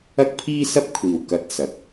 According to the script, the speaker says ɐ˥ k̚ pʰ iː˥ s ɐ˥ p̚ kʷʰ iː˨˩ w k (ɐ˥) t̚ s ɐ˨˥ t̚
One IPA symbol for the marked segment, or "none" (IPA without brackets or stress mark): ɐ˧